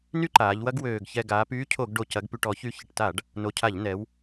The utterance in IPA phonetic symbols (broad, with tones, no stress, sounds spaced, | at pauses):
n y˦ ǃ aː˩˧ ʎ w ɐ˦ ɡ w øː˨˩ ɡ ç ɛ˨˩ ɡ aː˩˧ p yː˦ cʰ o˧˩˧ ɡ ɖ o˨˩ c ɐ˩˧ ɡ p y˨˩ ʈ ɔ˧˩˧ ç y˨˩ ç ɪ˨˩ ʈ t a˧˩˧ ɖ | n o˨˩ cʰ a˧˩˧ ʎ n ɛ˩˧ w